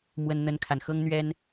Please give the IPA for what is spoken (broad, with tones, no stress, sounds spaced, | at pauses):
m w ə˦ n n̪ ə˦ n kʰ a˨ n x ɤ˦ ŋ n̪ ɥ ɛ˦ n